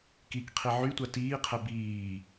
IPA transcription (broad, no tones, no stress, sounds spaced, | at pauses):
k i k qʰ i ʕ y tʷ a t iː qʰ ɛ b iː